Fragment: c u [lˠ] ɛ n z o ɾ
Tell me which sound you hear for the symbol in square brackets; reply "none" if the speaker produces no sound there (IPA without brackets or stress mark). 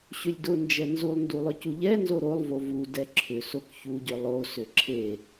ʎ